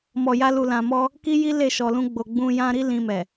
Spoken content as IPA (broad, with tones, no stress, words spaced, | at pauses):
mɔ˨ja˧ lu˨lã˨ mɔ˧ | ki˦ji˦ le˦˨ʃɔ˨lũ˧ ɡ͡bo˨ɡ͡bũ˧ jã˧ɾi˦ lĩ˧mɛ˨